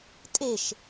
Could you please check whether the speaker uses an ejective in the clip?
yes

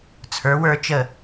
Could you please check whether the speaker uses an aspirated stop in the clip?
yes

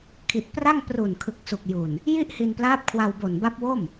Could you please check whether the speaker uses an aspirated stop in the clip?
yes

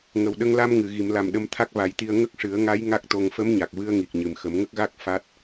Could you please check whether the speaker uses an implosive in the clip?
yes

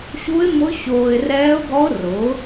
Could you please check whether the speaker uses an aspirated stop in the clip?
no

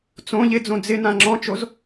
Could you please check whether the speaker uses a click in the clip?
yes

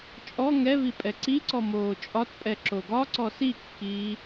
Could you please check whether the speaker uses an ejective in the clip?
yes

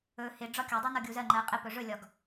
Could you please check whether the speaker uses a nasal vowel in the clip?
no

